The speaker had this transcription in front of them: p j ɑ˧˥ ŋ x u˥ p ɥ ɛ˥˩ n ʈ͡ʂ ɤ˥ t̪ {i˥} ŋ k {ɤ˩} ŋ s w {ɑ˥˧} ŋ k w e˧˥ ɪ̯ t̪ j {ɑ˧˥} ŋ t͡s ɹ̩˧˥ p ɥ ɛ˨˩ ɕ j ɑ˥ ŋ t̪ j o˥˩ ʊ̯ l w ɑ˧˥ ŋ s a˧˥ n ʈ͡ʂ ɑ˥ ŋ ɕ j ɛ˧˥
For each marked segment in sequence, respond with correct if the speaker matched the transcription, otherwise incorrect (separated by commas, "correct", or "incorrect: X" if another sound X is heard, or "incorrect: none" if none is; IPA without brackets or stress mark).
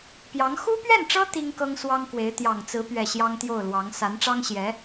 correct, incorrect: ɤ˥, incorrect: ɑ˥, incorrect: ɑ˨˩